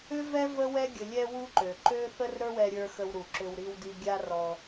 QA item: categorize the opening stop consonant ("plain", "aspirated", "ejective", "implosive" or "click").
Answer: plain